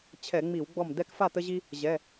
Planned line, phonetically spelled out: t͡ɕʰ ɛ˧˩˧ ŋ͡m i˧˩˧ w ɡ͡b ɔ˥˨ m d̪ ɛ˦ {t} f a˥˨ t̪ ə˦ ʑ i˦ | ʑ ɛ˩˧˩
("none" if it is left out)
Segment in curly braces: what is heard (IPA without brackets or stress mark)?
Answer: k